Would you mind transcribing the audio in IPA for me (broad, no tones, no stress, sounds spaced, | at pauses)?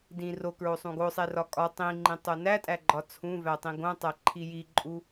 d ĩ r o k ɹ o sˤ ũ ɡ o sˤ e r ɒ kʼ ɒ tˤ ĩ ŋ͡ǃ ĩ tˤ o n æ tʼ æ ɡ͡ǃ ɒ t͡sʰ ũ v æ tˤ ĩ ɡ õ tˤ æ ǃʰ i j i ǃʼ u